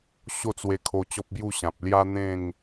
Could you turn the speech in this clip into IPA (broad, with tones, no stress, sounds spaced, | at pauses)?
ɕ o˥˧ t͡s w e˧ kʰ o˧ t͡ɕ ɔ˦ p̚ b j u˥˧ ɕ ã˨ p̚ l j a˦ n̪ ẽ˥˧ ŋ